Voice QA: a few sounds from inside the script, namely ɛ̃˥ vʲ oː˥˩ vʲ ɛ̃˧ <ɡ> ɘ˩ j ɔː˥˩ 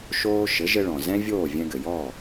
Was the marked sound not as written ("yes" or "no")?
no